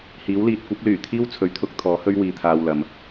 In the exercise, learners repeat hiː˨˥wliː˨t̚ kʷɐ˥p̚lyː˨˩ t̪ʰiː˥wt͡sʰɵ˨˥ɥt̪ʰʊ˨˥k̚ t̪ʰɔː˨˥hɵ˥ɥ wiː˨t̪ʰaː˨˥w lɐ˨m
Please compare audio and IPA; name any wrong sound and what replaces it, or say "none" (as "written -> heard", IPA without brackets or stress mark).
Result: aː˨˥ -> aː˧